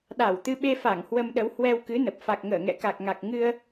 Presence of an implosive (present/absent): present